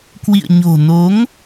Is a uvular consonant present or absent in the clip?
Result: absent